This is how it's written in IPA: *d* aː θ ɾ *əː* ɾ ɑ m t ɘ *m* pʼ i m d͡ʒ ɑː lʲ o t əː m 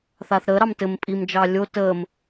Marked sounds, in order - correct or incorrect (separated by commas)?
incorrect, correct, correct